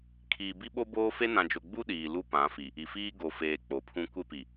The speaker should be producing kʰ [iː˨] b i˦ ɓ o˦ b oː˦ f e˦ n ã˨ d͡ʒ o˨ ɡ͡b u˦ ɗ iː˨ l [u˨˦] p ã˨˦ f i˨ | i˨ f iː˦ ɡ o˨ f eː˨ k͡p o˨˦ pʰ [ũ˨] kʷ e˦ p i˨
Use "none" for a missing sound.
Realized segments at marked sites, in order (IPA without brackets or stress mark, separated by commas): iː˨, u˦, ũ˦